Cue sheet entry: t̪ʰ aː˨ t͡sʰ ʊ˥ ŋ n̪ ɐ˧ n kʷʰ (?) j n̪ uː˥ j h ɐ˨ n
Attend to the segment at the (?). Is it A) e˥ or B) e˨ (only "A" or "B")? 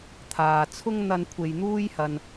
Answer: B